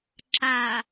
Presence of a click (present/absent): present